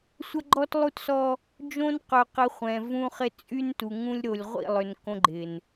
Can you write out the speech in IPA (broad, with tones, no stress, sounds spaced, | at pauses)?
sʷ ɐ˦ ɡ͡ǃ ɔ˦ t lˠ u˦ t s ɔ˦ | d͡ʒ õ˦ n q œ˨ q ɪ˨˦ χʷ ɛ̃˨ v ũ˦ χ ɪ˦ t͡sʼ y˦ n t u˨ ŋ ũ˦ lʲ ɾ o˨ lʲ ʁʷ ḭ˦˨ lˠ ʏ˨ n k õ˦ ɡ͡ǃ ɪ˨ n